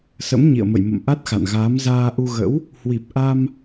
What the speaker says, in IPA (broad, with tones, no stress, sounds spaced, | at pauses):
s ə̰˧˥ m ɲ ḭ˧˨ ə̯ m ə̰˧˨ j m ə̰˧˨ m ʔ a˦˥ t̚ x a̰˧˨ n ɣ aː˨˦ m z aː˧ ʔ u˧ ɣ ə̰˧˥ w | h w i˨˩ p̚ ʔ a˧ m